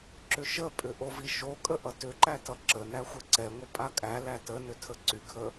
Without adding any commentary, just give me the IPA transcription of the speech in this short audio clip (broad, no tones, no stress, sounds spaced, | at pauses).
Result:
ǁ ʏ ʃ ə pʼ ʏ ʔ o v i ʃ o kʼ ə ʔ ʌ t ʏ ǃ æ t ʌ ǁ ə n æ xʷ ə ǀ ɛ ŋʷ ə pʼ a kʼ æ l æ t ə n ʏ tʰ ə ǀ y kʰ ə